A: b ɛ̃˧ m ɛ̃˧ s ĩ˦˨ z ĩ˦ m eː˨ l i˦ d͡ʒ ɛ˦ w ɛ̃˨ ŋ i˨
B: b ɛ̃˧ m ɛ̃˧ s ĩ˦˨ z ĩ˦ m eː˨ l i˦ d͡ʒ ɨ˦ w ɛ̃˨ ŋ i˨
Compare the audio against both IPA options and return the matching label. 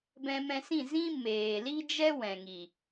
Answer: A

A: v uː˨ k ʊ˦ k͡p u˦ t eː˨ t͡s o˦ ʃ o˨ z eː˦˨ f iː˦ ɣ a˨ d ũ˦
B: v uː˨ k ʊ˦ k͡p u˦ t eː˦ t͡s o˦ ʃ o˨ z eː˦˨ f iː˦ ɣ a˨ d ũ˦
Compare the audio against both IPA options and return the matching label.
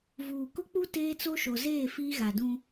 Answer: B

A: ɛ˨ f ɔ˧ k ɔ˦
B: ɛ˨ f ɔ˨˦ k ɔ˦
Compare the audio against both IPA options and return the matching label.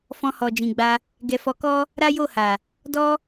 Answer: B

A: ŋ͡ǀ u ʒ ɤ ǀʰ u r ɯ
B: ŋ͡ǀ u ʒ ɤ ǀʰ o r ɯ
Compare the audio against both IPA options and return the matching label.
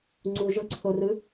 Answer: B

